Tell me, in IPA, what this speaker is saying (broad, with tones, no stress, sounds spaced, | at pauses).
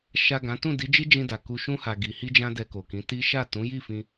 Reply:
ʃ a˨ ɡ ã˨˦ t ũ˦˨ d i˨˦ d͡ʒ i˦ d͡ʒ ĩ˧ d a˨ k u˨ ʃ ũ˧ h a˨ ɡ i˨ h i˧ d͡ʒ ã˧ d ɛ˧ k o˨ k ĩ˨˦ t i˦ ʃ a˦˨ t ũ˨˦ j i˦˨ f ĩ˧